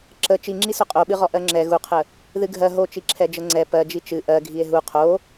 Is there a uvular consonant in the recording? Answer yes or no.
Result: yes